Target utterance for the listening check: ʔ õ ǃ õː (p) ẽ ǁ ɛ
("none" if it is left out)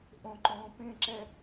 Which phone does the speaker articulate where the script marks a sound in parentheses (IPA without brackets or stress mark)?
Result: p